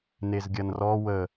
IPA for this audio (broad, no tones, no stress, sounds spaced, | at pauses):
n e z ɡʲ ɐ n r ɔ w ə